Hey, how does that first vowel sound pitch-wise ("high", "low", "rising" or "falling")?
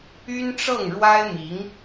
high